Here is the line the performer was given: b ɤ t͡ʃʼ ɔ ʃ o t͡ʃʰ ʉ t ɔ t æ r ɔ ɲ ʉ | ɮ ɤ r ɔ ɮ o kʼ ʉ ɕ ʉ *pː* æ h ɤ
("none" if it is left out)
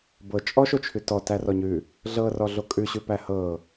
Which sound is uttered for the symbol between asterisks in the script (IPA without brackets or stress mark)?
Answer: p